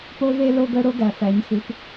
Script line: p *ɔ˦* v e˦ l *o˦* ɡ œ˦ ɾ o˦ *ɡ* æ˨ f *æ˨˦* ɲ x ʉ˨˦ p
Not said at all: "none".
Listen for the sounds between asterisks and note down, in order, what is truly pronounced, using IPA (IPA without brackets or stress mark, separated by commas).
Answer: o˦, o˦, ɡ, æ˨˦